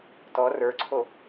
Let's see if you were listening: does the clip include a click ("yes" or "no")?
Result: yes